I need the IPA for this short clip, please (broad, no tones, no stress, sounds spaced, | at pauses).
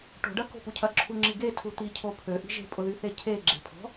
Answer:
ʈ o̤ ɖ ɐ k o̤ p u cʰ ɐ ǁʰ u ŋ͡ǁ i ɡ e tʰ u t̪ i cʰ o pʰ ø ʔ i̤ ʒ e̤ pʼ ʊ ð y θ e cʰ e ɡ͡ǁ e̤ pʰ ɔ̤